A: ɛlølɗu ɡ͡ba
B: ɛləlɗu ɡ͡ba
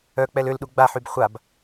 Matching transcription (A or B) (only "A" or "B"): A